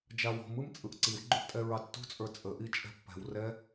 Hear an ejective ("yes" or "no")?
yes